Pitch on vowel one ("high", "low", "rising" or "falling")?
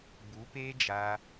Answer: rising